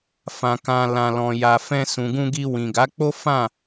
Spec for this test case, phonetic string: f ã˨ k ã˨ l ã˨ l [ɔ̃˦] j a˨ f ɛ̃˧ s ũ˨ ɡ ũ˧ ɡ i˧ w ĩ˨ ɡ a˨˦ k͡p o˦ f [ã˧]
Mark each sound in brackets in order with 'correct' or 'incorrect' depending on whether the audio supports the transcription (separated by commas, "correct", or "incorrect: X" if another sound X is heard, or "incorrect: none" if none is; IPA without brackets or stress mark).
incorrect: ɔ̃˨, incorrect: ã˦˨